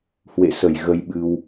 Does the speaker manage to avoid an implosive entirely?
no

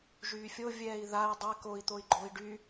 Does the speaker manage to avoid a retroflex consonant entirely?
no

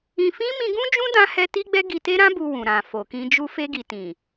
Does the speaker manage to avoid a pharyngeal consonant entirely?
yes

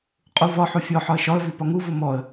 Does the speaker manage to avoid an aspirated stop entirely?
yes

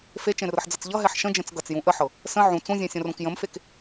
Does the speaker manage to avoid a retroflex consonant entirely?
yes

